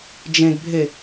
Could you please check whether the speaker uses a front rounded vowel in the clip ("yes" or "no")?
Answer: no